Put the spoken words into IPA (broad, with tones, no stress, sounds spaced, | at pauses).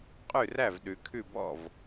qʼ ʉ˥˩ r æ˥˩ v ɗ ʉ˩˧ kʰ ʉ˥˩ b ɔ̰˥˩ v